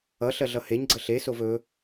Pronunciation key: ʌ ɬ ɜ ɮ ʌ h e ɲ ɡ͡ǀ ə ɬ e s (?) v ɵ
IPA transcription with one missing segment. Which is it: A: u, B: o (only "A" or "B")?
B